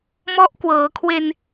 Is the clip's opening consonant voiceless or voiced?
voiced